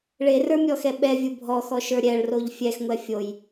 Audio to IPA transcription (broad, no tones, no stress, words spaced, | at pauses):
ɭerə˞mʲɔxɛ ɓɛvʲu bʱɔxɔʃə˞ ɾʲɛɭroʎ fʲɛxŋʷɛ fʲoj